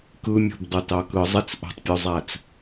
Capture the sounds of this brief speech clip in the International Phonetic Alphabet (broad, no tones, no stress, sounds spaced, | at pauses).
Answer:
k ɯ mʲ o̤ b dˤ o t ɑ k ɯ zˤ i t͡s ʔ o̤ tˤ pʲ u zˤ æ t͡s